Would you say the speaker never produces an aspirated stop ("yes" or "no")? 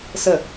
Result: yes